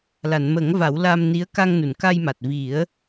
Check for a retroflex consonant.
absent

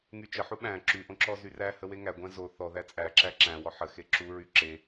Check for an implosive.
present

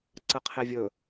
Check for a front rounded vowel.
absent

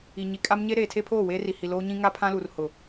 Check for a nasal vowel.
present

